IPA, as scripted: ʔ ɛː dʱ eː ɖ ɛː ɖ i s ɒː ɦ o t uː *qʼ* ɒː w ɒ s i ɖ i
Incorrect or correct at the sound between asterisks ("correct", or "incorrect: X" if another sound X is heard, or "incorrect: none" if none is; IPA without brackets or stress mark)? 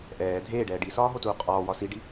correct